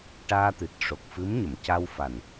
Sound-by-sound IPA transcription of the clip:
ʈaː˧t̪ɨ˨˩t̚ ʂo˨˩k̚fɨ˧˥mɲə˨˩˨mca˧w fa˨˩n

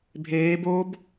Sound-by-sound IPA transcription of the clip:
bʱeː boːb

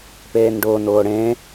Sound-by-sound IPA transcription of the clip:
peːnɖʊːn ʊːɽẽ

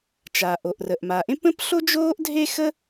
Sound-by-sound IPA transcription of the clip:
t͡ʃaː˩ʔo˩ʔrə˩ʔ ma˩ʔẽ˥pə̃˥p ɬo˥d͡ʒoː˥ʔdʱe˥xə˥

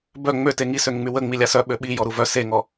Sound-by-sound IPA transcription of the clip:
bœ ŋ͡møte ŋisøŋŋ͡my wə ŋ͡milʲasœ ɓøɓi jɔɾuvœ seŋɔ

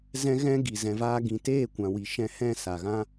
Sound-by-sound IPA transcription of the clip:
zɛ̃˧ɣɛ̃˧ ɡi˨ zɛ̃˨vaː˧ɡĩ˨ teː˦˨kʷã˨wi˨ ʃɛ̃˧hɛ̃˦˨ sa˨ɣã˦

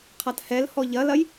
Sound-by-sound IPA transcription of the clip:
qʰathɛlhɔ ʎɐlɐj

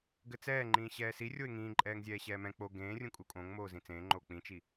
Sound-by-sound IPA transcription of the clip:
ɡɘt͡sɛː ŋ͡ǃĩːɕɛːsi rʲoɪ̯ŋĩːǃʼɛːŋzʲɛː ɕɛːmɛ̃ k͡po ɡẽːrʲũ kʼukʼõŋ moːzĩt͡sẽːŋ͡ǃoː k͡pĩt͡ʃi

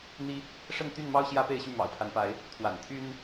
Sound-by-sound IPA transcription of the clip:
n̪i˦ | ʂə˥˨nt̪y˥˨nmɑ˦ʊ̯ ɕjä˦pe˥˨ɪ̯ɕy˥˨ mɑ̰˨˩ʊ̯pʰa˨˦npa˨˦ɪ̯ | t̪ʰwa̰˨˩n t̪ʰy˦n

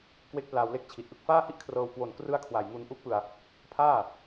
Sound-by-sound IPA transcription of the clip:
kwe˦˥k̚plaː˧wle˦˥k̚ t͡ɕʰi˨˩t̚ʔɯ˥˩k̚ faː˥˩hi˥˩ʔkʰrɤː˧w kwo˨˩nkrɯ˦˥a̯ kʰwa˨˩jŋu˧nʔu˦˥k̚pɯ˧a̯ | pʰaː˥˩

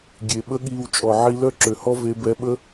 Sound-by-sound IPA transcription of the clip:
ɡʲe˨ ɓə˦ɠiː˧wt͡ʃʼɔ˨ ʕi˦ lœ˦ǁø˨hɔ˦ ve˧bɛ˧ɓə˦

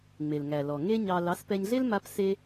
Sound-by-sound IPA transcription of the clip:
ŋ͡me˨lŋæ˨lɔ˨ ŋe˦ ɲɑ˧ lɑ˨˦spɛ˧ɲɮe˦l ma˦pse˦

